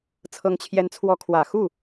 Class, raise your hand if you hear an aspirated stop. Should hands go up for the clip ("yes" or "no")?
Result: yes